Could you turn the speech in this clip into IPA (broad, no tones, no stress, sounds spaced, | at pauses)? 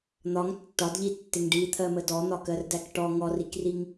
n̪ ɒ ŋ tː ɒ d ʎ i tː ɪ ŋ ɖ i t̪ʰ ɜ m ə d ɔ n̪ ɒ k ɜ r d æ k ʈ ɔ ŋ ɔ r i k r i ŋ